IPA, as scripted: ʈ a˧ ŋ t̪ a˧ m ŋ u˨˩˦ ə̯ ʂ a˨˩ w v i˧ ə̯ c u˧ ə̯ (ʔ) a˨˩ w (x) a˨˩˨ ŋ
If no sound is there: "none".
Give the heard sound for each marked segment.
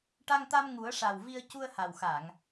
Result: h, x

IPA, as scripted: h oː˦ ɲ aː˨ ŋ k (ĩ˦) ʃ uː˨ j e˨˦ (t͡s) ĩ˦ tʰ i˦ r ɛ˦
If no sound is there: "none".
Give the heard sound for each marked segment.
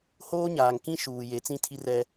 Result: ĩ˦, t͡s

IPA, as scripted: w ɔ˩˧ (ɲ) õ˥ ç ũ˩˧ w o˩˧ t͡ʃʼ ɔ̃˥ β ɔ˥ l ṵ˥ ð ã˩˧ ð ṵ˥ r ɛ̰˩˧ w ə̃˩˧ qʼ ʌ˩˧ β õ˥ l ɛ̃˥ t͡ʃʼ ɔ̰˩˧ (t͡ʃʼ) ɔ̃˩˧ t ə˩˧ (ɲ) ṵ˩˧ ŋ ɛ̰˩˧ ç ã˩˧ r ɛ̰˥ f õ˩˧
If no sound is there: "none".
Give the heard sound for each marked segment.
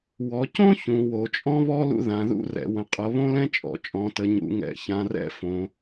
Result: c, t͡ʃʼ, ɲ

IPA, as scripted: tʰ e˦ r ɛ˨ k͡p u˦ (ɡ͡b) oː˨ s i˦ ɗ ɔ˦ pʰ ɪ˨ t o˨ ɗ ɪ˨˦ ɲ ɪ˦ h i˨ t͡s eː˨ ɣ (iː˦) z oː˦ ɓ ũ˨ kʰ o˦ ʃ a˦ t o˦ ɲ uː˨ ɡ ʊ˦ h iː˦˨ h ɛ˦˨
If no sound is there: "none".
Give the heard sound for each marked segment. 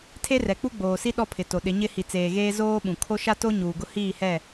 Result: ɡ͡b, eː˦

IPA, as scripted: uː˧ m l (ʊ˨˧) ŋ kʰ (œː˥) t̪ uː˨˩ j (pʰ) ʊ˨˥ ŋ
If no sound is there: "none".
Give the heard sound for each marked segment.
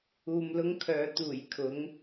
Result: ʊ˥, œː˨˧, kʰ

